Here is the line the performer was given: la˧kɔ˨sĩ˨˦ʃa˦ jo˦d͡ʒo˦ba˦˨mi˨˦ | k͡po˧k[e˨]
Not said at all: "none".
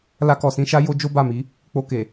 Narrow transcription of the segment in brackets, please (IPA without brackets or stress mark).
e˨